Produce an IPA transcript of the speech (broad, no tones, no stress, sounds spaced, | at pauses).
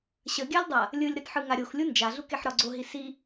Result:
ɕ ə ɡʲ a lʲ dˤ a | lʲ ɯ lʲ ɾ ɯ t ħ ɯ ŋ a ɾʲ o x lʲ u n d͡ʒ a ɮ u k e ħ ɾ ɒ ɡ͡ǀ o ɦ i s i